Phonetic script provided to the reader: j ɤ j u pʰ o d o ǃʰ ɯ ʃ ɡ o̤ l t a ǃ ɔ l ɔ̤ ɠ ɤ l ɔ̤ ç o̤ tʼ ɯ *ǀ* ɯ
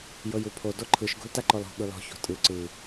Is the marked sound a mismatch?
no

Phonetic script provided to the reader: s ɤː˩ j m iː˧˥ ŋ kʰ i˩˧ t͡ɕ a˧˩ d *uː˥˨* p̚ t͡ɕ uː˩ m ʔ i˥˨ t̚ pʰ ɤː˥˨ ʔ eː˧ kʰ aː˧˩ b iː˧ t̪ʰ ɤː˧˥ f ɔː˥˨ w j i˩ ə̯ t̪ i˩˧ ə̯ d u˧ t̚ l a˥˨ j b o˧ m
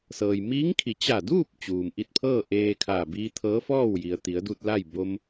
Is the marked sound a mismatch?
no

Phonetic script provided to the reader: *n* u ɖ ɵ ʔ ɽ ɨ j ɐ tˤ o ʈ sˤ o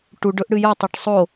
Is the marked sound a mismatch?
yes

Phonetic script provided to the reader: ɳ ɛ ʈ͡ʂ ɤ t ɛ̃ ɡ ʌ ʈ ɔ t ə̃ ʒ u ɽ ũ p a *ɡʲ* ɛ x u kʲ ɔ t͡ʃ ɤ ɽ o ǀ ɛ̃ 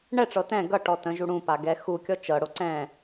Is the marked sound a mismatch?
yes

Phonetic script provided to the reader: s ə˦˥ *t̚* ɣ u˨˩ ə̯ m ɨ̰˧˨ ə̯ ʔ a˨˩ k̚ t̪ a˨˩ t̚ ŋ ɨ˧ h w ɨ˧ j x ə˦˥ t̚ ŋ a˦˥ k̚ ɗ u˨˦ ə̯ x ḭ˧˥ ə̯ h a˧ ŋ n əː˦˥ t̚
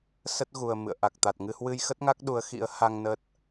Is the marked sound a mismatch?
no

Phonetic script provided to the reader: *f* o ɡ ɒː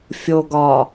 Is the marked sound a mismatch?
yes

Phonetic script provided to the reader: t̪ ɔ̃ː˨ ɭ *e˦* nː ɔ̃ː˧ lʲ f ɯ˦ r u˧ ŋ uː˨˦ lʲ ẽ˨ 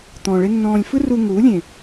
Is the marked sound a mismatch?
no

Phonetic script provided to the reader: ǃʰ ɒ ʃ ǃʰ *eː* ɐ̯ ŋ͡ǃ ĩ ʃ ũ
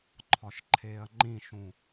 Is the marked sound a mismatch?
no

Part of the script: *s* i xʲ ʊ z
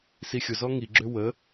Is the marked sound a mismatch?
no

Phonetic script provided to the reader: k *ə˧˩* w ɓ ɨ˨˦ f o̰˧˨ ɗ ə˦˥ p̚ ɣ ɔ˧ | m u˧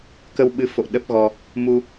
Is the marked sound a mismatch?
yes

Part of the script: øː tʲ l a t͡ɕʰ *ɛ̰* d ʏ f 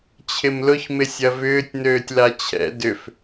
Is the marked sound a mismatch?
no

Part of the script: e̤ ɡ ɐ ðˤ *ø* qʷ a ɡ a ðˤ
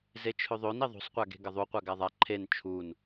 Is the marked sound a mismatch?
yes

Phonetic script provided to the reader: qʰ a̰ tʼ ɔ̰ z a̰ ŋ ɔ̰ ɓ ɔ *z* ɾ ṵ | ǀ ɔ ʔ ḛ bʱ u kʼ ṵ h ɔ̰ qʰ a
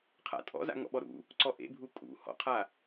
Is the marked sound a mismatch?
yes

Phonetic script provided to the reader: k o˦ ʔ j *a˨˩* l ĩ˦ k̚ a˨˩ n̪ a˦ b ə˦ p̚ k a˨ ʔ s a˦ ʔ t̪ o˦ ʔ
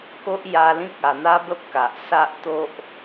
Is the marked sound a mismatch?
yes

